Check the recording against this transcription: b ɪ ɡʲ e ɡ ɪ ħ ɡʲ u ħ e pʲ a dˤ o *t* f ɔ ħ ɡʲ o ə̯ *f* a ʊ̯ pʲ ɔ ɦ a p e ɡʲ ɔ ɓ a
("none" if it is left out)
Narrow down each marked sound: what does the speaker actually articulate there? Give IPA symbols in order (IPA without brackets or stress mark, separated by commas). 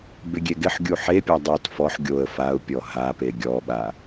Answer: t, f